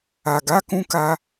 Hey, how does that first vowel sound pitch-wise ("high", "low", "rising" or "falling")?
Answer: low